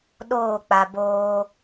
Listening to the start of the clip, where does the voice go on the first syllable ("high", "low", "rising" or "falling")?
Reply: falling